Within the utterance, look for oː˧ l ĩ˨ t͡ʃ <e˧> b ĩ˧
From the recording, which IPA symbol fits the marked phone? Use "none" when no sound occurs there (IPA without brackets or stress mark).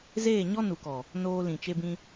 e˧